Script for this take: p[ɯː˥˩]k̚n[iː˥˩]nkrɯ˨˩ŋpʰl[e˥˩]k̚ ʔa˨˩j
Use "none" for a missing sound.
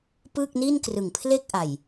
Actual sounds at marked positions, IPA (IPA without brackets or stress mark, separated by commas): ɯː˥˩, iː˥˩, e˥˩